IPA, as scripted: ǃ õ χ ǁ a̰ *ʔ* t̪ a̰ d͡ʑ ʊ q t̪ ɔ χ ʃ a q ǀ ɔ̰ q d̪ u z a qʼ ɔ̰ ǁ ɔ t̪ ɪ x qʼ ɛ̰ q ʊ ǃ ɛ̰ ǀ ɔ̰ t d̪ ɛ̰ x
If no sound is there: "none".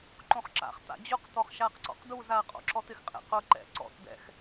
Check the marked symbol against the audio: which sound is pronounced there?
χ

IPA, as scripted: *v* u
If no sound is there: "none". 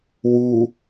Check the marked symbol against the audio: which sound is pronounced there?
w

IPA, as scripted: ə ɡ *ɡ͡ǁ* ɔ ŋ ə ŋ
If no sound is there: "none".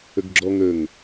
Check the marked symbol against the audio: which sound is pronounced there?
ɡ͡ǁ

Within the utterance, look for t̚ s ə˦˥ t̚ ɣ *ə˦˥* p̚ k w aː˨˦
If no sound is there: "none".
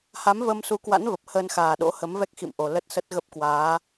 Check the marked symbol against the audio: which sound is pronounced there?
ə˦˥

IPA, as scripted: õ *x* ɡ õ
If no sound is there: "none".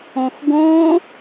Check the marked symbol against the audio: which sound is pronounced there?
x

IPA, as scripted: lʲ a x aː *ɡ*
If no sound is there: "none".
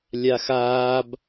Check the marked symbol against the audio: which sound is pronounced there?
b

